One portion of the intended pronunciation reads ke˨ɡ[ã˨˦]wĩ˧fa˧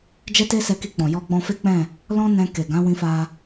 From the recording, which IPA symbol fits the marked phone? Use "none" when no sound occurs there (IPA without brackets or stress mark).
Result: ã˨˦